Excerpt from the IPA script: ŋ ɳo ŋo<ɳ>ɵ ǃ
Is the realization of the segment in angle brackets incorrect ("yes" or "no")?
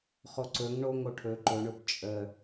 yes